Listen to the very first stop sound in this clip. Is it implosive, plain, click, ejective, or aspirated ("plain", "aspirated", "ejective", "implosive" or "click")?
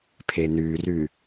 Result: aspirated